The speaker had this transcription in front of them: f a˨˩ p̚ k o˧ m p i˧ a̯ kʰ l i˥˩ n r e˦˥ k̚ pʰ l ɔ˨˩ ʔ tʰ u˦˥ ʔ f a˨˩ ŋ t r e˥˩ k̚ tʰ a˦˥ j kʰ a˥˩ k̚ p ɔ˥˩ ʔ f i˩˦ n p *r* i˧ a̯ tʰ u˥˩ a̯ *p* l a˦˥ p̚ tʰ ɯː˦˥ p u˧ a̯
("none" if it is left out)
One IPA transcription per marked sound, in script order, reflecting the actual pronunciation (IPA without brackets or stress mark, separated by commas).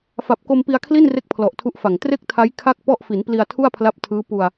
l, pʰ